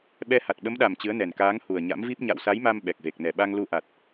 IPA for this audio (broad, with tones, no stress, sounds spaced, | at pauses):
ɓ ɛ˧ h a˨˩ t̚ ɓ ə˨˦ m ɗ a˨˩ m t͡ɕ ɨ˨˦ ə̯ n ɛ˨˩ n k aː˨˦ ŋ h u˨˩ ə̯ ɲ a̰˧˥ m v i˦˥ p̚ ɲ a̰˧˨ w s a˨˦ j m a˧ m ɓ ɛ˨˩ k̚ v e˨˩ k̚ n ɛ˧˩ ɓ a˧ ŋ l u˧ ʔ a˨˩ t̚